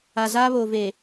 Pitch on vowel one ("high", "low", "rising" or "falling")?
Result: low